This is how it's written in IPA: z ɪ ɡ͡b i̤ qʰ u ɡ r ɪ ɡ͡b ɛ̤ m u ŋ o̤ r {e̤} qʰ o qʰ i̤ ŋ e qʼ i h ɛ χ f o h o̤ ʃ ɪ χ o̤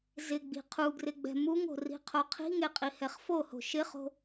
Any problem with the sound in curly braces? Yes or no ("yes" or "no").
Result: yes